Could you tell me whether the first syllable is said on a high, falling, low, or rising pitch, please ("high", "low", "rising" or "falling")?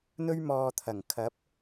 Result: high